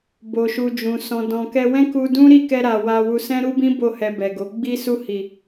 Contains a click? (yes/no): no